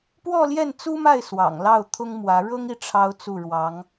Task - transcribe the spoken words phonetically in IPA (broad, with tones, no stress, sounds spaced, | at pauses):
p w ɔ˥˧ l j ɛ˥˩ n t͡s u˥ m a˥˩ ɪ̯ s w ɑ̰˨˩ ŋ l ɑ˥˩ ʊ̯ t̪ʰ ʊ˥ ŋ m w ä˧˥ ɻ ɤ˥ ŋ i˥˩ ʈ͡ʂʰ ɑ˥ ʊ̯ t͡s u˥˩ ɻ w ɑ˧˥ ŋ